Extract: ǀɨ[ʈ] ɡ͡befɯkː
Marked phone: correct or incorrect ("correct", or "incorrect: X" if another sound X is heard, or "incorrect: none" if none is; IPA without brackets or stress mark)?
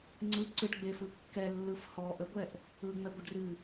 correct